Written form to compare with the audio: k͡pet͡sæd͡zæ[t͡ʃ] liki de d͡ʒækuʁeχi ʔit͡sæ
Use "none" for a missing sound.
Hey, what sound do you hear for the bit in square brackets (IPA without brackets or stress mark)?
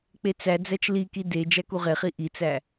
t͡ʃ